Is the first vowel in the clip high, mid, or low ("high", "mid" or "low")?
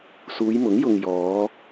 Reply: high